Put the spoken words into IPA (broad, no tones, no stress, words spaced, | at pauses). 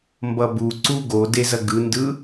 mbʌbu ǀuɡode zɐɡɯndɯ